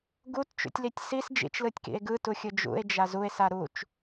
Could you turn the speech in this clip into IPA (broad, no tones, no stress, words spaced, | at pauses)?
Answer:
ɡutt͡ʃṵtʲlitʲ sis d͡ʒḭt͡ʃlɯtʲkḭe̯ ɡɯtuxʲɯ d͡ʒṵe̯d͡ʒa zue̯sa ɾut͡ʃ